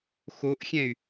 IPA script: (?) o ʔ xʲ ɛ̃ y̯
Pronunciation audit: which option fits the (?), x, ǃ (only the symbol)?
x